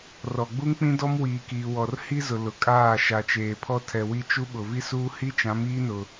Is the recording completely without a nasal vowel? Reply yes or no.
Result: no